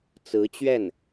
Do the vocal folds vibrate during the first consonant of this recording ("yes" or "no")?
no